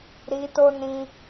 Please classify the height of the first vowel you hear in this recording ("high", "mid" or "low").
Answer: high